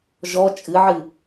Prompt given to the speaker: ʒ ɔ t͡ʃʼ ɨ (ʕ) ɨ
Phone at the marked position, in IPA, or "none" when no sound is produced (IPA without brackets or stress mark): ʕ